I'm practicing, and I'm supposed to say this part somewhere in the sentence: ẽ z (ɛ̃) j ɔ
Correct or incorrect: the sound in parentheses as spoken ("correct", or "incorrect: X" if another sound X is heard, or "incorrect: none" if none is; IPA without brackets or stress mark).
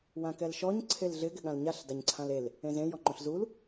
incorrect: ẽ